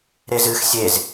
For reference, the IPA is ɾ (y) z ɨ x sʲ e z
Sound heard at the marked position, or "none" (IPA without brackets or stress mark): e